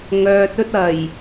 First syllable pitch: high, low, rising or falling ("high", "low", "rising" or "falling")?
low